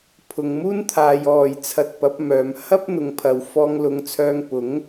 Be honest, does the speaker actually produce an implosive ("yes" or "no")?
no